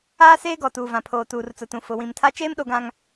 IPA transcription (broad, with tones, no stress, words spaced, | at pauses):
aː˦seː˦ɡɔ˨ tuː˨vã˨pʰoː˨ tuː˨rt͡sʊ˨tũ˨ fʊ˨wĩ˨mtʰa˦ t͡ʃeː˦mɗo˨ɡã˨ŋ